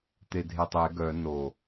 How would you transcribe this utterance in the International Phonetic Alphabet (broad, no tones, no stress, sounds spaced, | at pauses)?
t̪ e dʱ e tˤ e ɡ œ n o